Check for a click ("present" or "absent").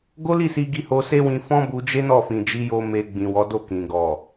absent